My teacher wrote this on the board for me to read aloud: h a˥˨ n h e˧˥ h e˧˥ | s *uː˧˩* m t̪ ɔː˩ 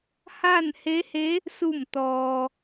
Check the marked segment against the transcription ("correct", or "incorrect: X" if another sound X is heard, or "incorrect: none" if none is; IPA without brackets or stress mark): incorrect: u˧˩